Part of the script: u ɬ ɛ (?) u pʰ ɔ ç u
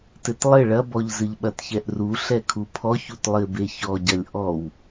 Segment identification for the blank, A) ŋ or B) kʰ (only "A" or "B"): B